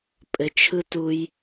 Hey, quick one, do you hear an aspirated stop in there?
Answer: yes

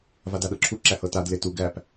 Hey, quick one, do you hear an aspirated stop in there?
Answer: yes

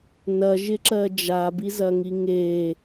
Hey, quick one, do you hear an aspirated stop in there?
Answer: no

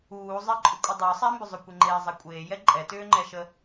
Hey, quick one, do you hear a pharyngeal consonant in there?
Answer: no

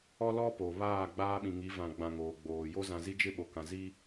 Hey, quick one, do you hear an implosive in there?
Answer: yes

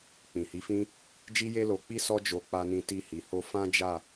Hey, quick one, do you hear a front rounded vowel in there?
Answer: no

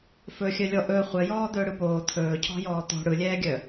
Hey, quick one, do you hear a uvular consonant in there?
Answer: yes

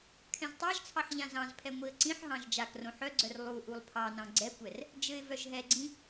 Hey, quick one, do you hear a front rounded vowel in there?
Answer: yes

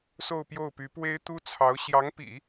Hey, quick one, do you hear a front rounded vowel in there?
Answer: yes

